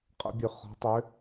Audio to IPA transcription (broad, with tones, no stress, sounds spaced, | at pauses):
qʼ ə̰˨˦ bʲ ø˧˩ χ ɔ̤˨˦ tˤ ø˨˦